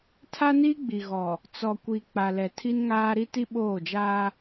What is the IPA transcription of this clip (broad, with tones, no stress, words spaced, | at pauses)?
tʰa˦ni˦ɡ͡bi˨ ɣɔ˨ | t͡sɔ˨kʷi˨ k͡pa˨lɛ˨tʰi˦nŋaː˦ ɾi˦ti˦ɓoː˦˨d͡ʒaː˦